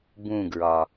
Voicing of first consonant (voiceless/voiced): voiced